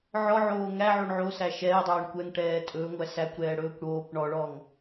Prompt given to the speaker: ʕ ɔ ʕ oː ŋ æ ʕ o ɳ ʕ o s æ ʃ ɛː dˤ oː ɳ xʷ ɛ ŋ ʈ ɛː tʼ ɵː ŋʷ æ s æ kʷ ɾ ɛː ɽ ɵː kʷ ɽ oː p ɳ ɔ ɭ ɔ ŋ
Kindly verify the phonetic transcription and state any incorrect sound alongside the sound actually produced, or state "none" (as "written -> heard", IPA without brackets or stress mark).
xʷ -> kʷ